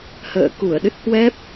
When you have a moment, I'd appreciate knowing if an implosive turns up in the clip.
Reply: yes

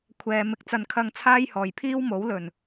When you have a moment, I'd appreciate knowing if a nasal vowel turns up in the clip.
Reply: no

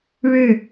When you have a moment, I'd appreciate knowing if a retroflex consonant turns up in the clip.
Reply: yes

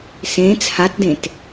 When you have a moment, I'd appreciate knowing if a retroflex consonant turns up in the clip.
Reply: no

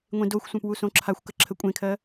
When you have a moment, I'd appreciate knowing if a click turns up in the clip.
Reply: yes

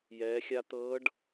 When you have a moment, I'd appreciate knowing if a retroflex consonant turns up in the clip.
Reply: yes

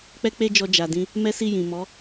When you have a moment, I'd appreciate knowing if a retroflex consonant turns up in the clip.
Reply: no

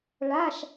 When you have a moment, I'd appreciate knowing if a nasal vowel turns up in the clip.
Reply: no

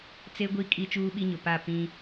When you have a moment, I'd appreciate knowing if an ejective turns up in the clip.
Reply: yes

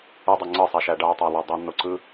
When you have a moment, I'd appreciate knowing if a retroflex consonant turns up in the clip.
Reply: yes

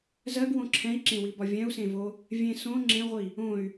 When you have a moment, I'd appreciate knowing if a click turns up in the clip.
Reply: yes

